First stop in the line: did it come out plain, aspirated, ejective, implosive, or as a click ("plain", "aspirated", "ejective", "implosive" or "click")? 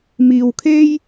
aspirated